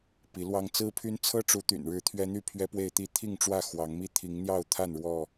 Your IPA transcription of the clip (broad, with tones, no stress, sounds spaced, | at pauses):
p i˨˦ l w ɑ˦ ŋ t͡s ɹ̩˦ pʰ y˦ n t͡sʰ ɤ˦ ʈ͡ʂ u˨˦ t̪ y̰˨˩ n ɻ ɻ̩˨˦ t̪ʰ ɥ ɛ˦ n̪ y˥˨ pʰ ɥ ɛ˦ p w e˥˨ ɪ̯ t̪ i˥˨ t̪ʰ i˥˨ ŋ ʈ͡ʂ w ä˥˨ x w ɑ˨˦ ŋ m i˦ t̪ʰ i˨˦ ŋ n̪ j ɑ˥˨ ʊ̯ t̪ʰ a˥˨ n ɻ w ɔ˥˨